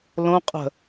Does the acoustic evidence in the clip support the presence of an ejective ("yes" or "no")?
yes